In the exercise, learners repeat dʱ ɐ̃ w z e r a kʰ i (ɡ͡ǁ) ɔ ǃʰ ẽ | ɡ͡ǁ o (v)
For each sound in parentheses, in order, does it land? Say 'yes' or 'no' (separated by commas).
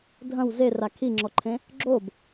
no, no